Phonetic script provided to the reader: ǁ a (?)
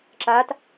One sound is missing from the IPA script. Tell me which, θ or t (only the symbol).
t